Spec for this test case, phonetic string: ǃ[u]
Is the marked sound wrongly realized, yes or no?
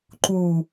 no